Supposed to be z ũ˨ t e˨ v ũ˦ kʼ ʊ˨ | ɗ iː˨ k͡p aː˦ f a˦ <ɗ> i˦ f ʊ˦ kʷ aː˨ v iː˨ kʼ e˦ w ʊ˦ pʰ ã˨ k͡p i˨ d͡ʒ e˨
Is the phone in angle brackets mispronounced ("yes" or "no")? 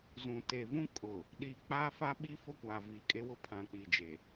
yes